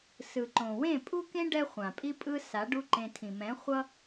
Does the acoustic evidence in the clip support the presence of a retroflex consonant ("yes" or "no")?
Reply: yes